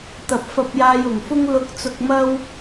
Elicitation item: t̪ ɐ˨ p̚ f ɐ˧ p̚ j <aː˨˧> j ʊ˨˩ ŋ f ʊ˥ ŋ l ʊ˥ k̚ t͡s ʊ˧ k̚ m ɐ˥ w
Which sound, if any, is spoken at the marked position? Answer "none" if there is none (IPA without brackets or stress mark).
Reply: aː˧